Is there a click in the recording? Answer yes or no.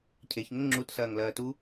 yes